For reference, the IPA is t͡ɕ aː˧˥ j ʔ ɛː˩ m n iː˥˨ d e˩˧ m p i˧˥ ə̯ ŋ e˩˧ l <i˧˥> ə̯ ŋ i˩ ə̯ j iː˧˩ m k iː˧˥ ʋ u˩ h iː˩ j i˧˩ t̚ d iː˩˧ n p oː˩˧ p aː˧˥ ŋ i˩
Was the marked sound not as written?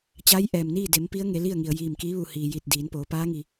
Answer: yes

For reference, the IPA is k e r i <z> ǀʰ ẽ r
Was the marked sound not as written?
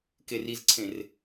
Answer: no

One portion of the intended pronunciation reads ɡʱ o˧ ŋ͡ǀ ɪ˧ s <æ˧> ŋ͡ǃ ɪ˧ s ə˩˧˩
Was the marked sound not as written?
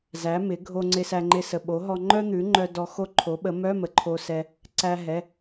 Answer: no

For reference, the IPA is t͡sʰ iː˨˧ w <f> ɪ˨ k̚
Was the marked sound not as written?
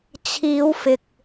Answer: no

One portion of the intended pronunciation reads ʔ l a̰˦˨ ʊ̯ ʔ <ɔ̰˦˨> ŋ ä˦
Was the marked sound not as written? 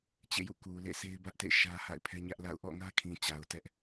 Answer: no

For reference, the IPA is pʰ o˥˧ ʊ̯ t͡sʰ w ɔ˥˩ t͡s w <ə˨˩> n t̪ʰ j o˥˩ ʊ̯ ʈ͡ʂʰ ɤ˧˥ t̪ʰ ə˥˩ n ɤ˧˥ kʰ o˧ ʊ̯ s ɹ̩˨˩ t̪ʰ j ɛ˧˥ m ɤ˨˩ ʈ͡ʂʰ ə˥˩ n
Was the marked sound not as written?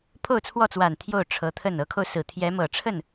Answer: yes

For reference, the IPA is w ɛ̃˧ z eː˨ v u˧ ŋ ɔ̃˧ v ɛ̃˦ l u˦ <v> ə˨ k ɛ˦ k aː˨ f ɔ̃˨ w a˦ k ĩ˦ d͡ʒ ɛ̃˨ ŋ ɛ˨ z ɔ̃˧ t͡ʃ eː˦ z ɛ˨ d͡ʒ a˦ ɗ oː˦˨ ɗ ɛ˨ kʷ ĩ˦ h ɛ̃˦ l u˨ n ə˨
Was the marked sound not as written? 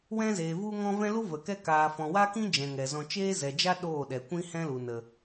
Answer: no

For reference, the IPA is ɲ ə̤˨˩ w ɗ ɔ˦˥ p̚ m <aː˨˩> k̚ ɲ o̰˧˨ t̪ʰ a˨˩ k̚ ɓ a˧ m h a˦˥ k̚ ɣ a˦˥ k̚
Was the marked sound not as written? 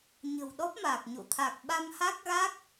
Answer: no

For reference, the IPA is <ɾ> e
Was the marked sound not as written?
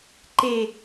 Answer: yes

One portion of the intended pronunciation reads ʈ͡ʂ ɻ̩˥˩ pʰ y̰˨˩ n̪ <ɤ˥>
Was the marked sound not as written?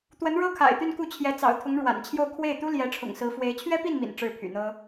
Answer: no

